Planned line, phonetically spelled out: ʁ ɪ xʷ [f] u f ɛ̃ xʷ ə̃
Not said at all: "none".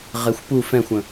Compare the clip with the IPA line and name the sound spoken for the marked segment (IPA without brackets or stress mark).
p